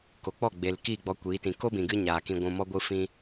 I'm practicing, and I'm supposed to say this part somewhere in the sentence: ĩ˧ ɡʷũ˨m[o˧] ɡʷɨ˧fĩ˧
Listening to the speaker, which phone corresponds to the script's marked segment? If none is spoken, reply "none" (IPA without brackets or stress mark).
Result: ɔ˧